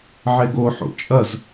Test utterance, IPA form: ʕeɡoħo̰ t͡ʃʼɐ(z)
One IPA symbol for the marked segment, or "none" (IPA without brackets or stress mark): z